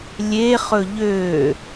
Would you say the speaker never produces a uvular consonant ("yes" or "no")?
no